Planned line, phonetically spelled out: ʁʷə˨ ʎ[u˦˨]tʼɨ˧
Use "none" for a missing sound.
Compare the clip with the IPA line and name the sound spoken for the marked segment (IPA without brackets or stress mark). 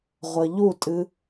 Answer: u˦˨